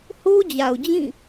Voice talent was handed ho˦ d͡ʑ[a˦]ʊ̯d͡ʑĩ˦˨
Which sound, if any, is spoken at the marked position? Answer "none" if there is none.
a˨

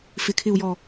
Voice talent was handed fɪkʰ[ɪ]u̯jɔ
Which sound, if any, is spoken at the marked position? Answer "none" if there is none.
ɪ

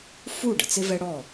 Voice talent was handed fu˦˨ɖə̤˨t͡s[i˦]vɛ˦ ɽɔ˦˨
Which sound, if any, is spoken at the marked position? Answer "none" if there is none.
ɪ˦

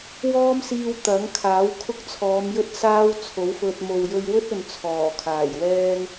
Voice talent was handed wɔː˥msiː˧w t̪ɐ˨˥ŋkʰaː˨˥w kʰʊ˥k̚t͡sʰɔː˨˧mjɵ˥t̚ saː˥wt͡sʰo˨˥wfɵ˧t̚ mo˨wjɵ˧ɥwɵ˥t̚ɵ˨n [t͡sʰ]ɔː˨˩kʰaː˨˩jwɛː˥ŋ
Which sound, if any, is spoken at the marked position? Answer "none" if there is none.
t͡sʰ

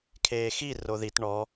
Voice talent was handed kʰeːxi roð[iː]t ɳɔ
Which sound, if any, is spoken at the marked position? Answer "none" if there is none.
i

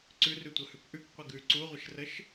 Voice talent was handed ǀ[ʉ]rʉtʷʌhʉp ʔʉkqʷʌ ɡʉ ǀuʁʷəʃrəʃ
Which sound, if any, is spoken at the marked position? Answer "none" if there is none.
ʉ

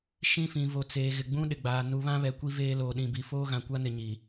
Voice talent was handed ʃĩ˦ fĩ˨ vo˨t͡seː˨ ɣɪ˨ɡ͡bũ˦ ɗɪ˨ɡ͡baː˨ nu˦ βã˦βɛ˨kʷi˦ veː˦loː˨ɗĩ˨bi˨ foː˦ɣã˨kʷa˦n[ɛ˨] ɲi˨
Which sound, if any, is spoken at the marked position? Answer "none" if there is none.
ɪ˨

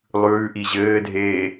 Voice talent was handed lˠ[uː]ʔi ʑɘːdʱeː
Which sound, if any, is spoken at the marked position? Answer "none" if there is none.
ʉː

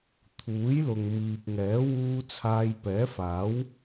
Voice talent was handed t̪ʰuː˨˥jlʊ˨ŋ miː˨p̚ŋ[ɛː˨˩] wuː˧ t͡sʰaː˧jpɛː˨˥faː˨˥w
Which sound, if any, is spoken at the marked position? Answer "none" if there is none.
ɛː˨˥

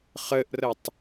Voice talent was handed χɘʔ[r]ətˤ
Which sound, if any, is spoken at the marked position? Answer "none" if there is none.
r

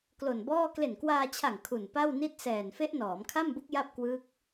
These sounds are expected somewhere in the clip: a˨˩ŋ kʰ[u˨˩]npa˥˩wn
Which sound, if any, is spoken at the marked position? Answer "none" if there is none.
u˨˩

